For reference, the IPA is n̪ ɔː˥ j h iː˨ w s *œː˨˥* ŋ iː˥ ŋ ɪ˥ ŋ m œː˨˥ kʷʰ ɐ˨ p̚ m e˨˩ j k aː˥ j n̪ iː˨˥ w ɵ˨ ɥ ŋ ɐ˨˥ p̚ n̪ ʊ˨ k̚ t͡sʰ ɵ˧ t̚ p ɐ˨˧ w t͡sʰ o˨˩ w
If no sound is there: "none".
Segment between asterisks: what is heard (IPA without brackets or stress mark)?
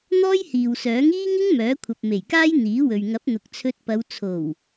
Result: œː˨˥